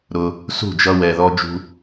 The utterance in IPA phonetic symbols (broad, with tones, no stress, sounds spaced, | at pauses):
ɾ ʊ˧ | s ṳ˦˨ d͡ʒ ʌ˧ w ɛ˨ ð ɔ˧ d͡ʒ ṳ˧